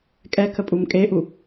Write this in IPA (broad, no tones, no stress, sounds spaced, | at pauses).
kʼ ɛ kʰ ə pʼ u m kʼ e ʔ u